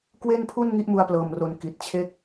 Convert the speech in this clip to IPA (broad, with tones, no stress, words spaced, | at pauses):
kwe˥˩npʰu˥˩n ŋi˦˥ʔmu˧a̯plɤː˨˩mro˨˩n ki˨˩t̚t͡ɕʰe˥˩k̚